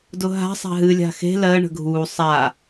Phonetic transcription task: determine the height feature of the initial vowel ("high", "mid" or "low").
high